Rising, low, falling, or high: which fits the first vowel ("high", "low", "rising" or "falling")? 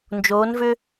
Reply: rising